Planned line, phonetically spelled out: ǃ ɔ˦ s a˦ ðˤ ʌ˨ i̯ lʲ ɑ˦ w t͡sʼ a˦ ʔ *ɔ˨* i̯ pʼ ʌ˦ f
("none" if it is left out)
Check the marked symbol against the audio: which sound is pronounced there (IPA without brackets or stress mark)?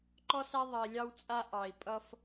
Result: ɑ˨